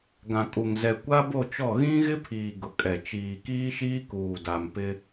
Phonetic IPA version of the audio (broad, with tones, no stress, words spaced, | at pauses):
ɡã˨kʼu˨ŋ zɛ˨kʷa˦bo˦˨t͡ʃɔ˦˨ ɣĩ˦ɣɪ˦pʰiː˨ ɡʊ˨kʼɛ˨ t͡ʃiː˨kiː˦ʃiː˦ kuː˨da˨m pɪ˦